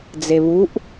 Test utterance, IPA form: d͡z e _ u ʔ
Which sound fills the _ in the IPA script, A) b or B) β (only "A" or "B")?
B